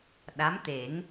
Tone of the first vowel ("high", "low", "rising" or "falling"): rising